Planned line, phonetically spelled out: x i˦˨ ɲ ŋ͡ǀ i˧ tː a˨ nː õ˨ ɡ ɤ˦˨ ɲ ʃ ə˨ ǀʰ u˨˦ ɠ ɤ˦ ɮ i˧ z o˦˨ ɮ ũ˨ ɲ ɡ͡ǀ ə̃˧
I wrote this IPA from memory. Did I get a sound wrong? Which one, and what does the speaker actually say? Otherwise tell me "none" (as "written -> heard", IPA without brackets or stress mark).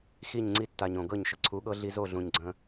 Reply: nː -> ɲ